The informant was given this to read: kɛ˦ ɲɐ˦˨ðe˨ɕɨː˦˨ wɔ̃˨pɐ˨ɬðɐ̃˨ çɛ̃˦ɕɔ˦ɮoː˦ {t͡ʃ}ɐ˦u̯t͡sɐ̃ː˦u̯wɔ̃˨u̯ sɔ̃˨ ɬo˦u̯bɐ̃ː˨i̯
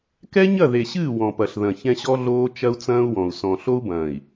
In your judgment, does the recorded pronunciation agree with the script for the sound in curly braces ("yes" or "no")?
yes